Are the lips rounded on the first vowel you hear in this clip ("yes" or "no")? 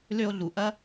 yes